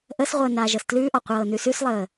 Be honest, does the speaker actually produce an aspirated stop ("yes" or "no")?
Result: no